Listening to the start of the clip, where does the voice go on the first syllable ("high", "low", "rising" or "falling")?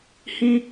high